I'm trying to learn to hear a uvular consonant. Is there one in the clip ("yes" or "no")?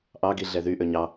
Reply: no